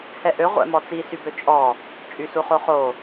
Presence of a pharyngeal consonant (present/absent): absent